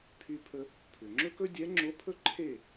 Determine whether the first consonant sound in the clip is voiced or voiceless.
voiceless